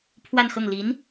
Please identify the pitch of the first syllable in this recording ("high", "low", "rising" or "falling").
falling